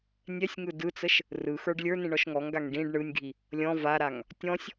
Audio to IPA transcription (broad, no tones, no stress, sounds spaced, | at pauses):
nʲ ɛ sʲ ŋ ɯ d ɯ t͡s ə ʃ | r ɯ x ə˞ ɖ lʲ ə˞ n ĩ ɳ ɔ ʃ ŋ ɔ ŋ ɡ a ŋ ɖ ĩ ɖ ɳ ɯ nʲ ɡʱ i | lʲ ɔ̃ v a ɾ a ŋ | tʲ ɔ̃ sʲ